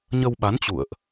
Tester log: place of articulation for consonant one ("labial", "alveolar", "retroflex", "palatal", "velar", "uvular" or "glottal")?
palatal